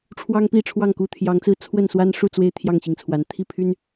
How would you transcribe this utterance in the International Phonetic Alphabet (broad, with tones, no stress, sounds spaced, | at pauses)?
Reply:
ʈ͡ʂʰ w ɑ˦ ŋ p i˥˨ ʈ͡ʂʰ w ɑ˥˨ ŋ k u˥˨ t̪ʰ j ɑ˨˦ ŋ t͡s ɹ̩˥˨ t͡sʰ w ə˥˨ n s w a˦ n ʂ u˥˨ t͡s w e˥˨ ɪ̯ t̪ʰ j ɑ˥˨ ŋ ɕ i˩ ŋ t͡sʰ w a˩ n t̪ʰ i˥˨ pʰ y˦ n